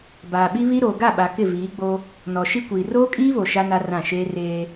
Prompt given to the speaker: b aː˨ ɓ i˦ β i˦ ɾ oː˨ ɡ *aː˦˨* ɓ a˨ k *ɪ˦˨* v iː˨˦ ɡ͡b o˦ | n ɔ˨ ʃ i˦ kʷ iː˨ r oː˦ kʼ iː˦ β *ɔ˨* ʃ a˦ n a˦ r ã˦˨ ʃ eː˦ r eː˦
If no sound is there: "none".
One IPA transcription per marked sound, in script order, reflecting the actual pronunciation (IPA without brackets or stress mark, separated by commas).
a˦˨, ɪ˦˨, o˨